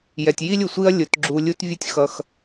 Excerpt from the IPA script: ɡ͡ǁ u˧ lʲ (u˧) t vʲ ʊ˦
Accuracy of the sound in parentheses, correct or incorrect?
incorrect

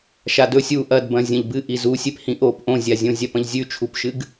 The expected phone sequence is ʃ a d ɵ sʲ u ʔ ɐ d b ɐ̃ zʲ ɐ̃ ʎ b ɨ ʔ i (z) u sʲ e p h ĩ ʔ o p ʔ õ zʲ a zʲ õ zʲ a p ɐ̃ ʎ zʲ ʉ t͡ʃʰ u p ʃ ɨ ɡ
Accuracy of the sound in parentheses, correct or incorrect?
correct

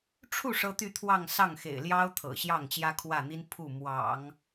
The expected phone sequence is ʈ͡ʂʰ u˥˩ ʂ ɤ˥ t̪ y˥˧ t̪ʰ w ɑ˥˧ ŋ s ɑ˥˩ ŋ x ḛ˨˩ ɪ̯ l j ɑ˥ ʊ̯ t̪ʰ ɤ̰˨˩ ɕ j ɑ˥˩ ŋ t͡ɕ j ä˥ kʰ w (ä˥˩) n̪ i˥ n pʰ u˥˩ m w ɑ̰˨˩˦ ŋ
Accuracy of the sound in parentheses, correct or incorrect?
correct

